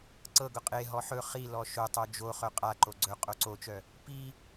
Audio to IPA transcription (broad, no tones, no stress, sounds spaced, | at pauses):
ǀ ɤ ɡ ʊ qʼ e ɦ ɔ ħ ɵ χ i l ɔ ʃ ʊ tˤ œ d͡ʒ o χ œ qʼ a ǃ o ɡ͡ǀ ɵ qʼ o ǀ o t͡ʃ œ | p i